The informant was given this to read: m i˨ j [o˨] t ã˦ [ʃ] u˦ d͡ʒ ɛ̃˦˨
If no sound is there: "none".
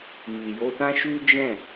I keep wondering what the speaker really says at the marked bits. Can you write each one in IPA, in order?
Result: o˧, ʃ

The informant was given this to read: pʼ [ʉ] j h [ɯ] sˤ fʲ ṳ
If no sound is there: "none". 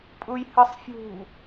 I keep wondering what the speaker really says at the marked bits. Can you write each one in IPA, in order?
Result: u, ɯ

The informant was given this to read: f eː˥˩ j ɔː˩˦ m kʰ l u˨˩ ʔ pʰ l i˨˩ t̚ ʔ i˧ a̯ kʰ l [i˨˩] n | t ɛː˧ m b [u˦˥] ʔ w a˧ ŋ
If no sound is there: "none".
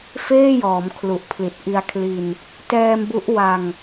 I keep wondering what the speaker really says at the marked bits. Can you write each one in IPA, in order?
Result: i˧, u˦˥

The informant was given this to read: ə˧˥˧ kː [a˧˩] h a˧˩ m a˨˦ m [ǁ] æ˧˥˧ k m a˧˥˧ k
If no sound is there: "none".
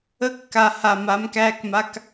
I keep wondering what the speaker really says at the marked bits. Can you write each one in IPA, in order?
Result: a˧˩, k

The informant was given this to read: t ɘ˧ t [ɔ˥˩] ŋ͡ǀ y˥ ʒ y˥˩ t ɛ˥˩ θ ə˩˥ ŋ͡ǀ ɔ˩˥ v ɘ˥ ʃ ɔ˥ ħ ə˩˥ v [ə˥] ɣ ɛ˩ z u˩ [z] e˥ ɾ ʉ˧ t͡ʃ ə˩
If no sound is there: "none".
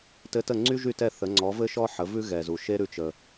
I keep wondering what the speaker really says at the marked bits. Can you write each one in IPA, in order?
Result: ə˥˩, ʉ˥, ʃ

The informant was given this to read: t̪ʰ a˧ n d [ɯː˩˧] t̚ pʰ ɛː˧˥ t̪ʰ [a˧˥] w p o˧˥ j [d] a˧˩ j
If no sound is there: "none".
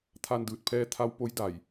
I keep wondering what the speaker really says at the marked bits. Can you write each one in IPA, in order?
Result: ɯː˧˩, a˧˥, d

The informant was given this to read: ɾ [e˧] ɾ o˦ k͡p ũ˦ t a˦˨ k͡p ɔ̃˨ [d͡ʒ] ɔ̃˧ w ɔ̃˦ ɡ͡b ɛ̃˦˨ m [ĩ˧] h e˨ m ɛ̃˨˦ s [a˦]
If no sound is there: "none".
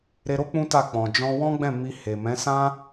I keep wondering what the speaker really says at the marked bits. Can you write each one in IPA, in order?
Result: e˧, d͡ʒ, i˧, ã˦

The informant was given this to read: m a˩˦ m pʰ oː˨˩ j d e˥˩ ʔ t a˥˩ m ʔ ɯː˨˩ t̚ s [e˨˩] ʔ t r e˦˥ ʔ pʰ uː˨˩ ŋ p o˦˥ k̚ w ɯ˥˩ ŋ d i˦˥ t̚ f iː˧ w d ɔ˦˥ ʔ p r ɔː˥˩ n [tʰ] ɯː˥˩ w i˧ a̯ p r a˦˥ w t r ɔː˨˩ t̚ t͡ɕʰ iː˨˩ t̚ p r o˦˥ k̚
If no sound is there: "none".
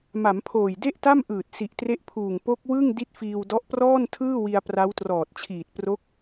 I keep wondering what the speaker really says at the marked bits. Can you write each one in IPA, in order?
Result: i˨˩, tʰ

